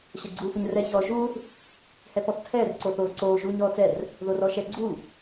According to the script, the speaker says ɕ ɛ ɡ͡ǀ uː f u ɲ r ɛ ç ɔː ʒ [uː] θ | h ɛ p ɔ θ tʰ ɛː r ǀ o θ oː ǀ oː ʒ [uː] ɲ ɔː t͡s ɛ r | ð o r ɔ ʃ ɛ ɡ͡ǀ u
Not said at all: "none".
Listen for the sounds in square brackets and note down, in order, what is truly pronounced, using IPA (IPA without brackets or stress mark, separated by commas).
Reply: uː, uː